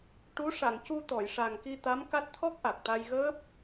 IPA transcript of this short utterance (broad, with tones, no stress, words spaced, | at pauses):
ʈu˧˥ ʂa˨˩˨ŋcu˧ t̪ɔ˨˩˨jʂa˨˩ŋki˧ t̪a˧˥mka˦˥t̚ t̪ʰɔ˦˥k̚ʔa˨˩k̚t̪a˧j ɣəː˦˥p̚